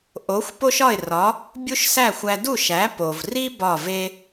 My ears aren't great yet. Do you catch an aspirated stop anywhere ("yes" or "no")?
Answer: no